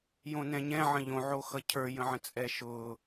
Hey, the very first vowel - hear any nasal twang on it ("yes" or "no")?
yes